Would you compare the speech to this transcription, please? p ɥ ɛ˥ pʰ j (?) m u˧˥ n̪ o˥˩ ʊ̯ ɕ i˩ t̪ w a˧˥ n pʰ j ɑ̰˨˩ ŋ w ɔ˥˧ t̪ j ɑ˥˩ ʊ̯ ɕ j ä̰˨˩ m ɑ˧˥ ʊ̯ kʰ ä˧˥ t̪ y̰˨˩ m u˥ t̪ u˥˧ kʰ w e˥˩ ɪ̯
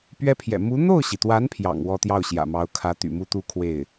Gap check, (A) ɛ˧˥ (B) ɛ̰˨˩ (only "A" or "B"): B